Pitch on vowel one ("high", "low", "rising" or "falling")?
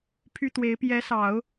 high